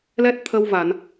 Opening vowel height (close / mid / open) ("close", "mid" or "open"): mid